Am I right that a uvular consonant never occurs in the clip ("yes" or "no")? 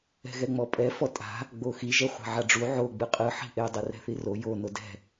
no